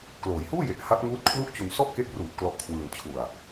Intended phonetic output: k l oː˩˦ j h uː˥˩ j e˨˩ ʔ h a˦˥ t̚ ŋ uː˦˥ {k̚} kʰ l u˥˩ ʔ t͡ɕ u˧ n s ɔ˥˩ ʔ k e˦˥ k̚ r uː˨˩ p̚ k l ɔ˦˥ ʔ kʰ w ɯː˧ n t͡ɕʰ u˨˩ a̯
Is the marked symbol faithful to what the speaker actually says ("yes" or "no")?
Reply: no